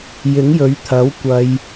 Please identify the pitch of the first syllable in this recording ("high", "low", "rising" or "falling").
rising